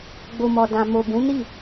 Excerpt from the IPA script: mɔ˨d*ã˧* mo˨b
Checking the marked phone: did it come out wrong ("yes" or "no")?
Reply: yes